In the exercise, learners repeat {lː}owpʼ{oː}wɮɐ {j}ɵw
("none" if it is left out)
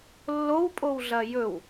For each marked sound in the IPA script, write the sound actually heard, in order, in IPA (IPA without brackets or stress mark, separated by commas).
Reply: lː, o, j